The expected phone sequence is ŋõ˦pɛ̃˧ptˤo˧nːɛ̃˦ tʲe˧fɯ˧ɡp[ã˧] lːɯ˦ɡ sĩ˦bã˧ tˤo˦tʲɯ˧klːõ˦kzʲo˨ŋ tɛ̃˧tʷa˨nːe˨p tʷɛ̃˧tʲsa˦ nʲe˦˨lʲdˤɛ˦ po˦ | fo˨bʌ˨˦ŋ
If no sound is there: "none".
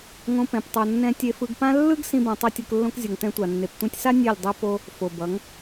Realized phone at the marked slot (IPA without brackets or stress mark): ã˦